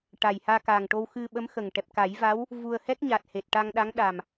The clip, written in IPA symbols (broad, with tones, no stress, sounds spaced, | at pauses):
ʈ a˨˩ j h aː˧ k aː˨˩ ŋ ʈ o˧ w x ɨ˧ ɓ ə˧˥ m x ə˨˩ ŋ ʈ ɛ˨˩ p̚ k a˨˩˦ j v a˧˥ w | v u˧ ə̯ h ɛ˦˥ k̚ ɲ a˨˩ t̚ h e˨˩ t̚ ʈ a˧ ŋ ɗ a˧˥ ŋ ɗ a˨˩ m